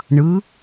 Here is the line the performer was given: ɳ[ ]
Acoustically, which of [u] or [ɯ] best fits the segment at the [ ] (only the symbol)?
ɯ